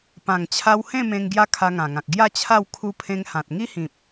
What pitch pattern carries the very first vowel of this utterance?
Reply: low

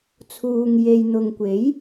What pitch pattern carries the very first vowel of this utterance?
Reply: low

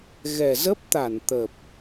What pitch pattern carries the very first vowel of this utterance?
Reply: low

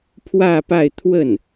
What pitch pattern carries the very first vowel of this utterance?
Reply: falling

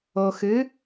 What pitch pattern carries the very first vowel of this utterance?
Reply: low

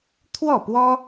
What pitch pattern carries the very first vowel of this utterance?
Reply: falling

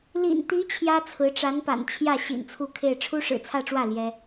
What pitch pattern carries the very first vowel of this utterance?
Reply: low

